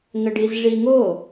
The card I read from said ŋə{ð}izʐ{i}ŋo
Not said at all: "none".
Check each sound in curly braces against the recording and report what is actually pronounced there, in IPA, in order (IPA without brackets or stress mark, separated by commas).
ɖ, i